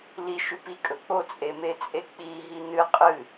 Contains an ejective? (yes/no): yes